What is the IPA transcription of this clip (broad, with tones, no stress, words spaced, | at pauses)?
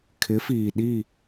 kʰɪ˨˦fiː˨ɗi˦˨